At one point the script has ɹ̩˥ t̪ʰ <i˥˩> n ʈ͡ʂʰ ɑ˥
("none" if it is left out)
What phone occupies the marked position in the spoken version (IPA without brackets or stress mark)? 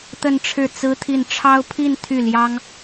i˥˩